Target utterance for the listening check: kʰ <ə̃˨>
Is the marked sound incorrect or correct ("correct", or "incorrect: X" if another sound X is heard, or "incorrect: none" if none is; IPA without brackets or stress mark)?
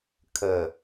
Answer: incorrect: ə˨